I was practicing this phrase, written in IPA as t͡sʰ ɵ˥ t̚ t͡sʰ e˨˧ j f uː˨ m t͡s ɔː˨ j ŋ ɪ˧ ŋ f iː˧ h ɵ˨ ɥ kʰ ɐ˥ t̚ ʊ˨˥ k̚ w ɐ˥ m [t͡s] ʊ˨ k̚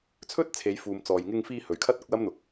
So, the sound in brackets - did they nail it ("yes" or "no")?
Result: no